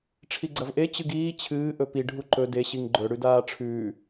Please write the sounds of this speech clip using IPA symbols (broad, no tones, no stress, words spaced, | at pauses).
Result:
ʈ͡ʂʰiɡ͡ǀɐvʔe t͡ɕɨɡiː t͡ɕʰɨː ʔɵpi ɖʱuǃɵ de ɕiŋɡ͡ǃɵ ɽʉdaːʈ͡ʂʰʉː